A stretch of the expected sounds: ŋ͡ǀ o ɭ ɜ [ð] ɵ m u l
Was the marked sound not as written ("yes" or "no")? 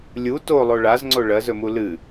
yes